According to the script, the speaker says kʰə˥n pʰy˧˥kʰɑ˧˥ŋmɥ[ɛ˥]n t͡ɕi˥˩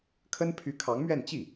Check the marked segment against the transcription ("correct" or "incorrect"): incorrect